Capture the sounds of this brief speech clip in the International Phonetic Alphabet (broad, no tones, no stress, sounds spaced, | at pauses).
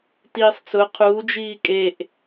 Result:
t iː sˤ t͡s ʊ qʰ uː d͡ʒ iː kʼ e ʔ